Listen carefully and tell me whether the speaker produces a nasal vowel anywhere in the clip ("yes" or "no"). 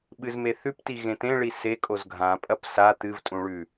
yes